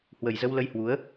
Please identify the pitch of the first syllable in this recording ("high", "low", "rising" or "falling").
low